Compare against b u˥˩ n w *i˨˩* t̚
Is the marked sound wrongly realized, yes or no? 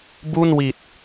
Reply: no